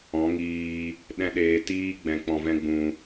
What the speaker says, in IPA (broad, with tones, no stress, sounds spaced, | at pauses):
ɔ̃˨˦ ŋ iː˧ | ɗ ɛ̃˦ ɗ eː˧ t iː˦ ɡ͡b ɛ̃˧ k͡p ɔ̃˧ v ɛ̃˦ ɡ͡b ũ˧